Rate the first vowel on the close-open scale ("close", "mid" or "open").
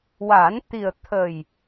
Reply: open